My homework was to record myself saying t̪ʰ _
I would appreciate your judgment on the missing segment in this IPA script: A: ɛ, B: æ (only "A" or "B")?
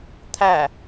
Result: B